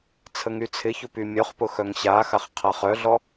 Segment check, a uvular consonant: present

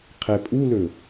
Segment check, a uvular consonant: present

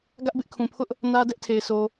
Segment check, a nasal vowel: present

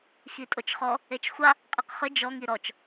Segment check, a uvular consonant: present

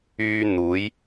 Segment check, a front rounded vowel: present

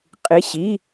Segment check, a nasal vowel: absent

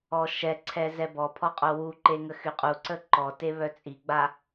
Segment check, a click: present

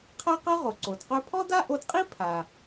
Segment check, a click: present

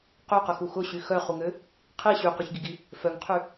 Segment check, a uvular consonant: present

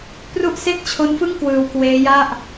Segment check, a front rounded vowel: absent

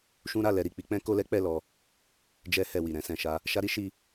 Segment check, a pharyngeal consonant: absent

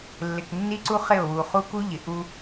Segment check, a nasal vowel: absent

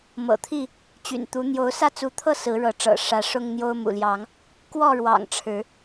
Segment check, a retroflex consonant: present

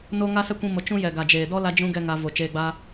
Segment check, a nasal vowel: present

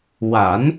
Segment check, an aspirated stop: absent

